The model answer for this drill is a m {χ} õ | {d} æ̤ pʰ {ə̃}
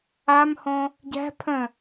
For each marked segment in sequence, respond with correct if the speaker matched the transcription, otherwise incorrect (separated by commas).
incorrect, incorrect, correct